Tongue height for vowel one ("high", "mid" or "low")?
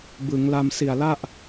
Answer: high